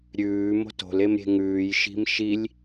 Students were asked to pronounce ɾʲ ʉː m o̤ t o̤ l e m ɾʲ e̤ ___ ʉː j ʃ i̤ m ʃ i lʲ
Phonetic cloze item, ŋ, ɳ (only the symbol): ŋ